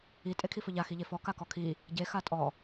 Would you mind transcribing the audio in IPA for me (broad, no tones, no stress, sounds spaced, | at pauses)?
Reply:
i tʼ e kʰ i f ɵ ʎ a x i ʎ e f ɔ k a k ɔ kʰ i | ɟ e x a tʼ ɔ